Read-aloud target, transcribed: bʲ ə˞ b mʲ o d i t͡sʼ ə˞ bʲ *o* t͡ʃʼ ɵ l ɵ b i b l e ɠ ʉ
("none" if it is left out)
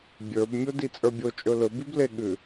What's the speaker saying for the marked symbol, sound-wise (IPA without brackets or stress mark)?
o